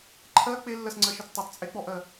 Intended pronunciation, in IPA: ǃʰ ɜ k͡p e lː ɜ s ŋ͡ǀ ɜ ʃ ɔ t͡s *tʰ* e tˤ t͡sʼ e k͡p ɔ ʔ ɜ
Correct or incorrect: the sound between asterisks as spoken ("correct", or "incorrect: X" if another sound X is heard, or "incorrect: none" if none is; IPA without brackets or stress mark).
incorrect: tˤ